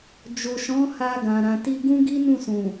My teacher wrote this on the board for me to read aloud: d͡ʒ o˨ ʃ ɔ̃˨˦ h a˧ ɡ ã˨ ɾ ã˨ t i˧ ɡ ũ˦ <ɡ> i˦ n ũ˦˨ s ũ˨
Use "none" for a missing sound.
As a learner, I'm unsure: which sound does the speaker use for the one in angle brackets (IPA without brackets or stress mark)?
ɡ